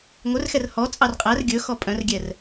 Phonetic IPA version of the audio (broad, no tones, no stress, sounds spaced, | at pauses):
ŋʷ œ r x ɛ r h ɔ t͡sʼ ɑ r qʼ æ r ɡʲ ɵ x ɔ pʼ œ̃ r ɡʲ ɛ r